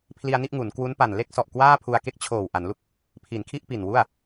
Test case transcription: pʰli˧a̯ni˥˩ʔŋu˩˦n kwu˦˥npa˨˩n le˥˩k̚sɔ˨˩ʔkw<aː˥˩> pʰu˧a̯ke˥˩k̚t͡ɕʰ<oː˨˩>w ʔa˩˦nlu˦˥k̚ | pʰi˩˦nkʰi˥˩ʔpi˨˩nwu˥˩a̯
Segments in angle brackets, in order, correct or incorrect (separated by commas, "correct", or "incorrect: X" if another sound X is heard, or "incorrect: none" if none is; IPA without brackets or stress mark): correct, correct